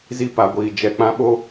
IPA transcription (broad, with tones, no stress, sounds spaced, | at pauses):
z i˦ p a˨ ɡʷ iː˨ d͡ʒ ɛ˨ k͡p ã˦ ɓ o˦